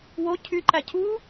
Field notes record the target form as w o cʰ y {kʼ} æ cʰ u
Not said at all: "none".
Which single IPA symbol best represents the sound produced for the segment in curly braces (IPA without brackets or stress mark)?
ǃ